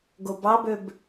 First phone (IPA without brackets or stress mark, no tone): ɡ